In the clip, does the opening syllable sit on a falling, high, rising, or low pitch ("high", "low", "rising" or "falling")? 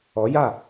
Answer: rising